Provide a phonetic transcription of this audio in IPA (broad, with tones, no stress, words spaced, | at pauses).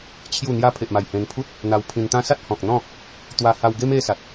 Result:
t͡ɕʰju˥˧ n̪ja˧pʰe˨ʔma˨˩j hẽ˧npʰu˦t̚ | n̪a˧wpʰĩ˧nt̪ã˦ sa˦t̚hɔ̃˨k̚ n̪ɔ̃˥˧ | t̪wa˧ha˧wɡe˦m e˦sa˨t̚